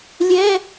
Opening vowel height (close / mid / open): mid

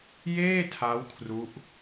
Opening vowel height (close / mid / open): mid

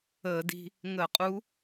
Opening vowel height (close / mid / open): mid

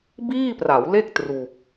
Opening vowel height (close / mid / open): close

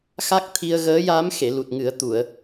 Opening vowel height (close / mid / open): open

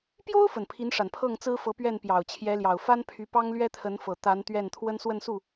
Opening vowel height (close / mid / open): mid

